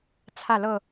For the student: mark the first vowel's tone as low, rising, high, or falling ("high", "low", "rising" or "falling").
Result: falling